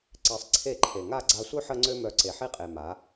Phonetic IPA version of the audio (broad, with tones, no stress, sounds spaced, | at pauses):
ǀ e˧ sˤ ǀʰ e˦˨ ǃʰ e˨ ŋ a˦˨ ɡ͡ǀ a˧ sʷ œ˦ ħ ə˦ ŋ͡ǀ ø˦ m œ˧ ǀ e˨ ħ i˦ qʼ e˨ m a˨˦